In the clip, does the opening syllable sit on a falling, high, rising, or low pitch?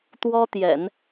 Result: high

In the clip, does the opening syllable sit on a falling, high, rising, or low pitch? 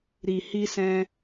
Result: low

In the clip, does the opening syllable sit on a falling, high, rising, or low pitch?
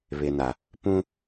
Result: low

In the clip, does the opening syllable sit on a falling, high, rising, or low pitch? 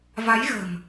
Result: rising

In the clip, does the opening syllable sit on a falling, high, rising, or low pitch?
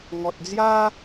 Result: low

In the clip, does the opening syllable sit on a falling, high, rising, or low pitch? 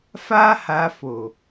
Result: high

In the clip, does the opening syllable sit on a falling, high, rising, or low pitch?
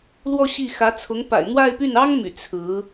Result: falling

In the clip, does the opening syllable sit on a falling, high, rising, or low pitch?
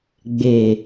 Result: low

